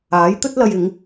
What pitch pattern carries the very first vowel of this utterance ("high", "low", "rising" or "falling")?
rising